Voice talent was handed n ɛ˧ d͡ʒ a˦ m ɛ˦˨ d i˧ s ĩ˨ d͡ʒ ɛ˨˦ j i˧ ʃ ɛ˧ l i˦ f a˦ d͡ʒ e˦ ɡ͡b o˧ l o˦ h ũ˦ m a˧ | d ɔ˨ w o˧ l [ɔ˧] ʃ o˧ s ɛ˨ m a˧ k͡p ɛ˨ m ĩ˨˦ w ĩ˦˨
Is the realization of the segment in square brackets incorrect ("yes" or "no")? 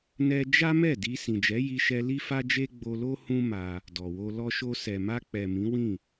no